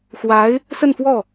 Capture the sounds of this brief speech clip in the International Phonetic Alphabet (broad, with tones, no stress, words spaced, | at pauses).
xwa˧˥ɪ̯ | sə˥˧nfwɔ˥˩